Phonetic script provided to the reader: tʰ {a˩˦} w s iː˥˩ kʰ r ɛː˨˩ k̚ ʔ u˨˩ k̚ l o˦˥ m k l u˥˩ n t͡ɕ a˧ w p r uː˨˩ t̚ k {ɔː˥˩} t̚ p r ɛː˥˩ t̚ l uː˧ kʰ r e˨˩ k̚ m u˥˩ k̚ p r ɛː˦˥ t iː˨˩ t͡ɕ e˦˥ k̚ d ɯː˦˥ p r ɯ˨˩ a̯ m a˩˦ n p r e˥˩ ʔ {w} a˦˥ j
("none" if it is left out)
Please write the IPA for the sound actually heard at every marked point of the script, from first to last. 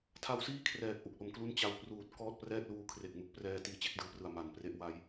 a˦˥, ɔː˥˩, w

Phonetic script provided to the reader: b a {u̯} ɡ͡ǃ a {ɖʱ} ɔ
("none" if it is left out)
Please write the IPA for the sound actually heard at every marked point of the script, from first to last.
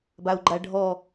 u̯, ɖʱ

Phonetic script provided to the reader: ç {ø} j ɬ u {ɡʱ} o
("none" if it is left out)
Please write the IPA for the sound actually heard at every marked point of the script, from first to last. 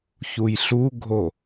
u, ɡʱ

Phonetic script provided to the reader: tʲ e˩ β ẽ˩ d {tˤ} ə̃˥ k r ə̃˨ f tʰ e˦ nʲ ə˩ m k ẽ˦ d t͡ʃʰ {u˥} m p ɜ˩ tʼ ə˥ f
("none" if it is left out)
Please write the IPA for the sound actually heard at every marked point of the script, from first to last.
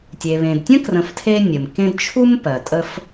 tʲ, u˥

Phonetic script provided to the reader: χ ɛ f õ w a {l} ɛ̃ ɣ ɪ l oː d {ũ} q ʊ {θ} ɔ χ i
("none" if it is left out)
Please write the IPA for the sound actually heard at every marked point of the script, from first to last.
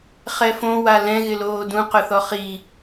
l, ũ, θ

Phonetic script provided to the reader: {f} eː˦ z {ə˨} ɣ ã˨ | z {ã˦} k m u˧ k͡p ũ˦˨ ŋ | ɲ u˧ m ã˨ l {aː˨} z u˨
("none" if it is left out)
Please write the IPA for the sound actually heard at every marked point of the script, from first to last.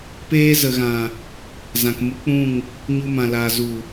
p, ə˨, ã˨, aː˨

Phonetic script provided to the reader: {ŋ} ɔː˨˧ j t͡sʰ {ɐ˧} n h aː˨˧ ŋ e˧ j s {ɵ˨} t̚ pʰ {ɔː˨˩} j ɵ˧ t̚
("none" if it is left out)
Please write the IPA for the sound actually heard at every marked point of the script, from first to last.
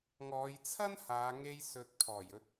ŋ, ɐ˥, ɵ˨˥, ɔː˨˩

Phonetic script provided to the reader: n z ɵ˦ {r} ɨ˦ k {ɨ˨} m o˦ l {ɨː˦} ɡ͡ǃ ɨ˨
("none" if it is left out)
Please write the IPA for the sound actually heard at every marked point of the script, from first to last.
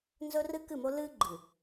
r, ɨ˦˨, ɨː˦

